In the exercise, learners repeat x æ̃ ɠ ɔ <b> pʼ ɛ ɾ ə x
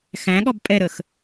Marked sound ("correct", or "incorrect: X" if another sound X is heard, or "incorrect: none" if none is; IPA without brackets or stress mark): correct